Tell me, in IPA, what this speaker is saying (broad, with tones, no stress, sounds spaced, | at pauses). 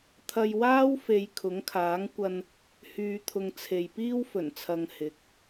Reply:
t̪ʰ ɐ˧ j w aː˥ w f e˨˧ j kʰ ʊ˨˥ ŋ kʰ aː˨˥ ŋ kʷ ɐ˧ n | h yː˨˧ t̪ʰ ʊ˨ ŋ t͡sʰ e˨ j p iː˥ w f ɵ˨˩ n t͡sʰ ɐ˨ ŋ h ɪ˨˥ k̚